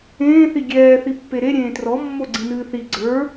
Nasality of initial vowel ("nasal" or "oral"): nasal